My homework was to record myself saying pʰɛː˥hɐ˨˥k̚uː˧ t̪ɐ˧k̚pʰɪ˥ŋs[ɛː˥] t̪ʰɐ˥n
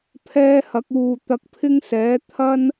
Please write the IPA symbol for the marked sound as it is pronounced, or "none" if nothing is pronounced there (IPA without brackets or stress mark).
ɛː˨˥